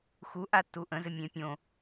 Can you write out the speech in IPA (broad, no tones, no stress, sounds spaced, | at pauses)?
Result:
x u ʔ a tː u ʔ ə̃ z ɘ mʲ ẽ pʲ õ